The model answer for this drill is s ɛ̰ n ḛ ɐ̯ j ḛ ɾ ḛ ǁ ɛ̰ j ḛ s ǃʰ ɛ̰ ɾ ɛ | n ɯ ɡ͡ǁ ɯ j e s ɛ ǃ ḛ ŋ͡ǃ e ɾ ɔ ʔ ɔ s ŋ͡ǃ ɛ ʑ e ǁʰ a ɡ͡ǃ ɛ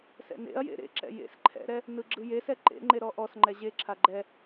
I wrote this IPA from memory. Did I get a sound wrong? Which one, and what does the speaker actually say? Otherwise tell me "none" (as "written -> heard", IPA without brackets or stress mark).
none